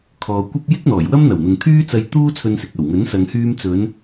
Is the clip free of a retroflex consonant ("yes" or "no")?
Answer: yes